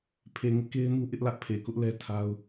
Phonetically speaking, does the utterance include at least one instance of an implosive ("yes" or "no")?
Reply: no